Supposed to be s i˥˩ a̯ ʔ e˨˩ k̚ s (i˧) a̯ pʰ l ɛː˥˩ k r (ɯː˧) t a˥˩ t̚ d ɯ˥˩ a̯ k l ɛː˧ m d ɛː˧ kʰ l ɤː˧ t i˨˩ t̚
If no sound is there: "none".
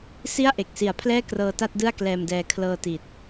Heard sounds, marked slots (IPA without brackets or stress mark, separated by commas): i˨˩, ɤː˧